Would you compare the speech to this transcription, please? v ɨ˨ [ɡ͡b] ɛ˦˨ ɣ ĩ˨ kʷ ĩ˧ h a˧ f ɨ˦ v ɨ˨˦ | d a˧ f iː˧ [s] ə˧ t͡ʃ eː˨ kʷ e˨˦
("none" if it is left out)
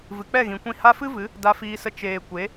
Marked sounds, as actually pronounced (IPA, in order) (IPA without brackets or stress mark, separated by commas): k͡p, s